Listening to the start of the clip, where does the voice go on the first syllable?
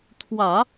low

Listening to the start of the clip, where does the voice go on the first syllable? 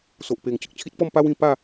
low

